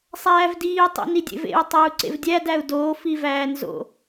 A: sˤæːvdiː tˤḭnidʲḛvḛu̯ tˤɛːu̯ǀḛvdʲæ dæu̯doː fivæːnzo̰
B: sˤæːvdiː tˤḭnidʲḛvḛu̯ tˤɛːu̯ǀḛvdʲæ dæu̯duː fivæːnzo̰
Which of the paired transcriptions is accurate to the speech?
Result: A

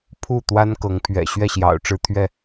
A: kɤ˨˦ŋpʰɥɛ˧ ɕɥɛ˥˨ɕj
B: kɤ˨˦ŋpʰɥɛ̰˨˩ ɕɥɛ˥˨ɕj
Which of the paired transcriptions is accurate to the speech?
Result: B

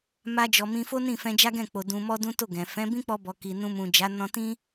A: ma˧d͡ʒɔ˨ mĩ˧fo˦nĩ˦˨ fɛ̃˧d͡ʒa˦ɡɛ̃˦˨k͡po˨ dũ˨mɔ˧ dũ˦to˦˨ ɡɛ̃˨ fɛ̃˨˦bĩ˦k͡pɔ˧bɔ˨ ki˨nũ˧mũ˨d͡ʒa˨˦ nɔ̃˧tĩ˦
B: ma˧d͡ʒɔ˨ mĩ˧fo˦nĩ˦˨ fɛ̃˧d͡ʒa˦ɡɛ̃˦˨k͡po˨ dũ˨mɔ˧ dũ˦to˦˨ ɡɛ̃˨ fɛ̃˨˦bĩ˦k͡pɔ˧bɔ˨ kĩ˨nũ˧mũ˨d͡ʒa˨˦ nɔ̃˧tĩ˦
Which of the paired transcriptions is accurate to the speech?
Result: A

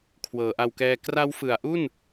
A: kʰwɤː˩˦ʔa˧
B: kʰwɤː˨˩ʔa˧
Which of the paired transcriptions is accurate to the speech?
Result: A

